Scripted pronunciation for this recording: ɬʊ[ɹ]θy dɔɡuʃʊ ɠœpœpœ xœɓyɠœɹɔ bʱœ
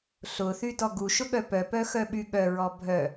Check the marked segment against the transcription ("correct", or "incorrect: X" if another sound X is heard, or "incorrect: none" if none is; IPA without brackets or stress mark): incorrect: none